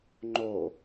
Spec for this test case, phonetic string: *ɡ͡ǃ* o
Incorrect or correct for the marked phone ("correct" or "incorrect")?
incorrect